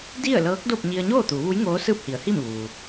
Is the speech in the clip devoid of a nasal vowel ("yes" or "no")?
yes